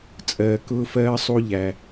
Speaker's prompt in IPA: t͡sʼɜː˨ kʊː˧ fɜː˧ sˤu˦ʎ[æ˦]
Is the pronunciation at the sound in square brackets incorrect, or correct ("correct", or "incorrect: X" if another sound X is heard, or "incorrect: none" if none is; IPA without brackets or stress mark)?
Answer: incorrect: æ˨